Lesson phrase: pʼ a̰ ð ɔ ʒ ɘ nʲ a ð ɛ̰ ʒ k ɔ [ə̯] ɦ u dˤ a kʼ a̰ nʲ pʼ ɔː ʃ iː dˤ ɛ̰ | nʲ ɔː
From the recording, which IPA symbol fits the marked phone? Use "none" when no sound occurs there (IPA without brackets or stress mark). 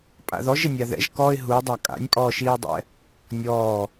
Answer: ɪ̯